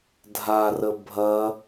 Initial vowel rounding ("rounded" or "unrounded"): unrounded